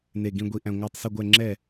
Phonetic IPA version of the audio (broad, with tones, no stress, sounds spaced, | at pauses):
n e˧˩ ɡ ĩ˧ ɡʷ i˧ ʔ æ̃˧ ŋʷ æ˧˩ tˤ s i˧˩ ɡʷ ɛ˧˩ ŋ͡ǁ ɛ˧˩